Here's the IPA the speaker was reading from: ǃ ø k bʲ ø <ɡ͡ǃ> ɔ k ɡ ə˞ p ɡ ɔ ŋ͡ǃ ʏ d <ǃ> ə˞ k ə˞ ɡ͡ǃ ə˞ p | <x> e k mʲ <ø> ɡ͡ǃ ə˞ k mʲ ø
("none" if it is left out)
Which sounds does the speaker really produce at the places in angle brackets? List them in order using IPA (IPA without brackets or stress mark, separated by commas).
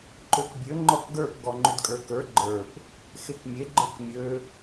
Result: ŋ͡ǃ, kʼ, x, e